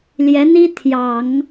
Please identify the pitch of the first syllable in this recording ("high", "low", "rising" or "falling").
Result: rising